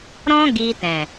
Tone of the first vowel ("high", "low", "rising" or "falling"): high